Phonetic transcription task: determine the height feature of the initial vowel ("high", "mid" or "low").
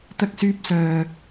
low